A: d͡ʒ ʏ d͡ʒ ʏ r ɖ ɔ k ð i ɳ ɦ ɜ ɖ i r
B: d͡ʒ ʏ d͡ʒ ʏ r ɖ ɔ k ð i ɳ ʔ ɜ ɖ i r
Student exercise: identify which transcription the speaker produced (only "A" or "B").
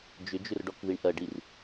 B